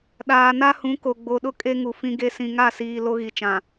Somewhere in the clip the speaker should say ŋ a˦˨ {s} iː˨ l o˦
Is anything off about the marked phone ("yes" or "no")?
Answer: no